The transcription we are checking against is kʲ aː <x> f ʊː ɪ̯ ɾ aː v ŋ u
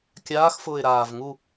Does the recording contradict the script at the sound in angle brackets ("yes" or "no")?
no